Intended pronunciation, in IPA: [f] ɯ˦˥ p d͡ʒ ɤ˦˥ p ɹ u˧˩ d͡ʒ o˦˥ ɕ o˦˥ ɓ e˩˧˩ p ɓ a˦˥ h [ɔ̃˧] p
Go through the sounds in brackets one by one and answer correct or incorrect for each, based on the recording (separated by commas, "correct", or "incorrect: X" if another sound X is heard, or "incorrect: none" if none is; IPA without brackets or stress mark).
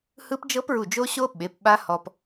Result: incorrect: h, incorrect: ɔ˧